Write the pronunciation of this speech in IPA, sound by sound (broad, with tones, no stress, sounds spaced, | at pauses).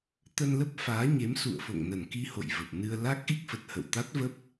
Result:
t̪ ə˧ n l ə˦˥ p̚ f aː˨˦ ɲ e˨˦ m s ṵ˧˨ ə̯ f o̰˧˨ ŋ n ə˧˩ n k i˧ h o̰˧˨ j v ə˨˩ p̚ n ɨ˧ ə̯ l a˦˥ k̚ ʔ i˦˥ k̚ f ə˨˩ t̚ h ə̰˧˨ w t̪ a˦˥ t̚ v ə˦˥ p̚